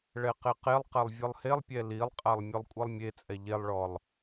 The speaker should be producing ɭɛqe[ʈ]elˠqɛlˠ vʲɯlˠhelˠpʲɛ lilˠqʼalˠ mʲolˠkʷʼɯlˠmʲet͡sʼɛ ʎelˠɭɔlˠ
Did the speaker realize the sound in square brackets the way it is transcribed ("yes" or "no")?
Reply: no